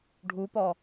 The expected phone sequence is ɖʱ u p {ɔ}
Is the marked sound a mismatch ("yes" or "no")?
no